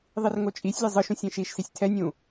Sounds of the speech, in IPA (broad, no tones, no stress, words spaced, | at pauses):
ðˤirŋot͡ʃʼisʲlʲe zˤɯʃũsʲ ẽʃiʃsisʲ tʰɛnʲũ